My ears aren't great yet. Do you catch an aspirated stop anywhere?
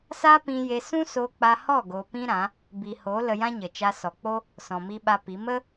no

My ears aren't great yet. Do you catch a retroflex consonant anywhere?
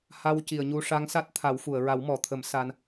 yes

